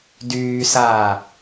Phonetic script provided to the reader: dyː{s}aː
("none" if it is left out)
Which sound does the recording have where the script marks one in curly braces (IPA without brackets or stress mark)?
s